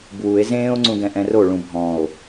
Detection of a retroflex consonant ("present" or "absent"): present